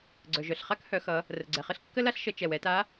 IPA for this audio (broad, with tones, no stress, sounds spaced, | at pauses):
ɡ͡ǀ œ˩ ʒ œ˩ ɬ χ a˥ k h œ˩˧ x ʌ˩˧ | r ə˩ ɡ͡ǀ ɛ˩ χ ə˥ ɬ kː ə˥ l a˥ ɬ ʃ ə˩˧ t͡ʃ ɛ˩ w ɛ˩˧ t a˧˥